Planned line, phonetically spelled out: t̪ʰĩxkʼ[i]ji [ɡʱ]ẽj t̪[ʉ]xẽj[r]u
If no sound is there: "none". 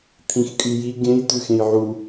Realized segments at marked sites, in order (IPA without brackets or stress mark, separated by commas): y, ɡ, ʉ, ʕ